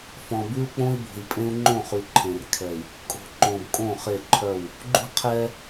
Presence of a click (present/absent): present